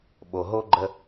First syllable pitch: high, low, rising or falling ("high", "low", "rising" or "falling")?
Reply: low